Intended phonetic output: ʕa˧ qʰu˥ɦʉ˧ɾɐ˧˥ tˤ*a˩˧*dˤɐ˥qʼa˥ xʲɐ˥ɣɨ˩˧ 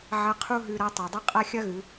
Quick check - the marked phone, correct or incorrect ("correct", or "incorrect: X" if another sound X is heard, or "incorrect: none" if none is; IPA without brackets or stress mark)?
incorrect: a˩